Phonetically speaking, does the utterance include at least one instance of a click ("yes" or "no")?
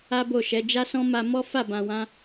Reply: no